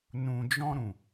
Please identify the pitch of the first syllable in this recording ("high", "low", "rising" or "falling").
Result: low